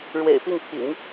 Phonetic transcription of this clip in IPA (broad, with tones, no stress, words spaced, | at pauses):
ɻwḛ˨˩ɪ̯pi˥˩ŋpʰḭ˨˩˦ŋ